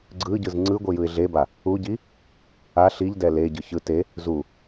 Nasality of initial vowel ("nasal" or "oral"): oral